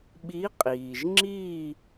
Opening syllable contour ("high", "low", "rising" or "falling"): rising